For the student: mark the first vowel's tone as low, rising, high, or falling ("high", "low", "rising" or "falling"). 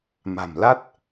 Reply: low